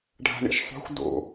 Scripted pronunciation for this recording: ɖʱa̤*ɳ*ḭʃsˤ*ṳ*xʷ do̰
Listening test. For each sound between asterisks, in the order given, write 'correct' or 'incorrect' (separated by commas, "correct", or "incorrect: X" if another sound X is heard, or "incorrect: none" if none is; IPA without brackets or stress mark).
correct, incorrect: o̤